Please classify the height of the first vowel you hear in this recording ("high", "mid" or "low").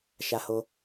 low